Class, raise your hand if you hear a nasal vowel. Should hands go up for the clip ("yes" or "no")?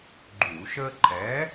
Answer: no